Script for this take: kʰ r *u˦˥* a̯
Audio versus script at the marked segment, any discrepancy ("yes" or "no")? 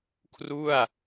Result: yes